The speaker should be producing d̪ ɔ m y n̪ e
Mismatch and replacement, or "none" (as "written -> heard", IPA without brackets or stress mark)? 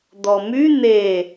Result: none